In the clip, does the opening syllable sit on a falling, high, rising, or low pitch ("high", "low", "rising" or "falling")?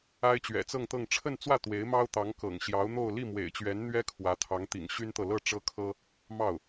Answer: high